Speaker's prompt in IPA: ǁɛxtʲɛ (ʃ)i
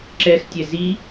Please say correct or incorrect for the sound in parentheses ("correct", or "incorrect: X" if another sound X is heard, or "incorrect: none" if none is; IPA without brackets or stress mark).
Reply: incorrect: z